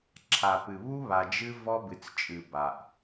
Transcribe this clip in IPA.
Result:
ǁʰa˨pɨ˨ βu˦βa˨d͡ʒɨ˦ vɔ˦bɨ˨t͡st͡ʃʼɨ˨ ba˨ʔ

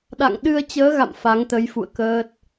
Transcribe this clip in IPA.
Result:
ɗa̰˧˨ŋɗɨ˧ə̯t͡ɕəː˨˦ɣa̰˧˨m fa˨˦ŋt̪ə˨˦j fṵ˧˨ə̯ kəː˦˥t̚

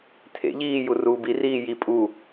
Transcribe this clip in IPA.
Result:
tʰḛʎiː juruːbiriː ji pʼu

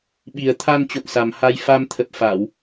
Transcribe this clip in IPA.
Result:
ɓi˨˩ə̯t̪ʰa˧n t͡ɕo̰˧˨ŋsa˨˩mha˧j fa˧mt̪ʰə˨˩p̚ fa˧˩˨w

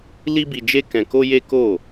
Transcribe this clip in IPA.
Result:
li˦bi˧d͡ʒe˦ kɛ̃˧ko˦je˦ ko˦˨

